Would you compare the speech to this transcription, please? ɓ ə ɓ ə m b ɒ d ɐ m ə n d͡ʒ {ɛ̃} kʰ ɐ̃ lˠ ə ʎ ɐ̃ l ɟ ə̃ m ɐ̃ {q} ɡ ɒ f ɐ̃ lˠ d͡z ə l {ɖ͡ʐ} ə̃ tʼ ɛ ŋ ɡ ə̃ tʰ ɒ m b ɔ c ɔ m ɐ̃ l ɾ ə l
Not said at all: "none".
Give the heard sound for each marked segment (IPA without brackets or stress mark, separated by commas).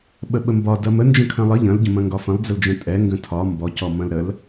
ə̃, ŋ, d͡ʒ